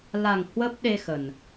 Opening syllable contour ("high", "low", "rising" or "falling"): low